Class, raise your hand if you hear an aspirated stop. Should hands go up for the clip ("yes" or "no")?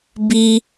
no